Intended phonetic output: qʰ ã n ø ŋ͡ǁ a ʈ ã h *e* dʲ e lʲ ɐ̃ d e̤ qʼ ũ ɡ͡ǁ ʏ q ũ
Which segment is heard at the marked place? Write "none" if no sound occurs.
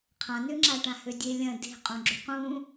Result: ø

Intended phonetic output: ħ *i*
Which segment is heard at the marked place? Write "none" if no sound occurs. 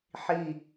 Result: i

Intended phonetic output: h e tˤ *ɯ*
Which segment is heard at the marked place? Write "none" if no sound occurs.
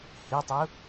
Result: ʊ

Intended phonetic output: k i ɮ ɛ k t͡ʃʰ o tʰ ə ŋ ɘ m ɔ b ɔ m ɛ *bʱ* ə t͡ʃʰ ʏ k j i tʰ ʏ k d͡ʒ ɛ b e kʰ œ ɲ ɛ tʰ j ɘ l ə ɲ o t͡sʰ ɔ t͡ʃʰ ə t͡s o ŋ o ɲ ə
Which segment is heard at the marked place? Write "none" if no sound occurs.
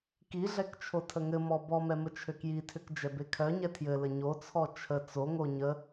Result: m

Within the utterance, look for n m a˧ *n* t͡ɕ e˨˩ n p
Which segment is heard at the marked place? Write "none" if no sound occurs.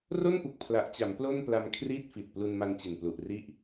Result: n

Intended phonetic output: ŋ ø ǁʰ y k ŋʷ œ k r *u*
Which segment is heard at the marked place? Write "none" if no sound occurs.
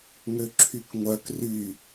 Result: y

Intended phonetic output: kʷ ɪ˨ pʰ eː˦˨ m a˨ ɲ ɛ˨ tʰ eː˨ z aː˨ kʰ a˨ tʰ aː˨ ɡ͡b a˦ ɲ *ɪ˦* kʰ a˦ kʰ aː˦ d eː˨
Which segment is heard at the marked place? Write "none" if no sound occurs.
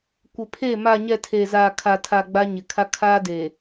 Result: ɪ˨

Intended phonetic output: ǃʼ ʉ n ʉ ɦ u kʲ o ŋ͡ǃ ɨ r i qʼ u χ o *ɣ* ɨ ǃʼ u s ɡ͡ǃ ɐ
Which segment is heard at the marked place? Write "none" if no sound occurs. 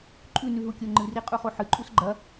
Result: ħ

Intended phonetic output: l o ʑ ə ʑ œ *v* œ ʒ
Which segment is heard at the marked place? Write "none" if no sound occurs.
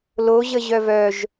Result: v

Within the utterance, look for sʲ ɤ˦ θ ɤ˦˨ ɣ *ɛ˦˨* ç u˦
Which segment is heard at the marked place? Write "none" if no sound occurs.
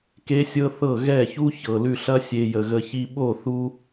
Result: ɛ˦˨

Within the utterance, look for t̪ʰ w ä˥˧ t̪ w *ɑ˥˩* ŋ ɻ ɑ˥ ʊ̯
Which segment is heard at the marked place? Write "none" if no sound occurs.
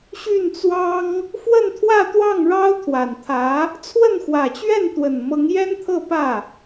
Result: ɑ˥˩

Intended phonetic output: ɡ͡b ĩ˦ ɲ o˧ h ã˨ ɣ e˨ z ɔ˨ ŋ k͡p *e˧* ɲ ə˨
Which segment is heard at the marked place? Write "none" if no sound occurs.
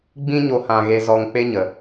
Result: e˧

